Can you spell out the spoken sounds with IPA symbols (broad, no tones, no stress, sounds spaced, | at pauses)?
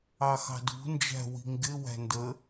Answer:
ɑ x ɑ̤ d ṳ n d͡ʒ æ̤ w i̤ ŋ ɡ ɪ w æ̤ n d ə